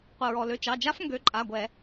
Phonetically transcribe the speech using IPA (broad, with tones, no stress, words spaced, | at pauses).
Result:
qʷə˩ɹɔ˩lø˩˧˩ t͡ʃɑ˩˧˩d͡ʒa˦˥f ŋɡø˨˦ǃʼa˩˧˩ɡʷɛ˧˩˧